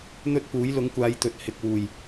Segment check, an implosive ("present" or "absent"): absent